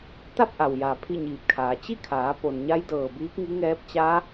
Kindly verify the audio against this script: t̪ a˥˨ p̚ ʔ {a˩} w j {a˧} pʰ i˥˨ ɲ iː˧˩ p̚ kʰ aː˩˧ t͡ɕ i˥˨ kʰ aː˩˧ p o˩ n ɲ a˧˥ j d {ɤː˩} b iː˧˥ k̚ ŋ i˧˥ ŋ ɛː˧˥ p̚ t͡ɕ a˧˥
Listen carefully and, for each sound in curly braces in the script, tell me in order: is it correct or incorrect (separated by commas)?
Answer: correct, incorrect, correct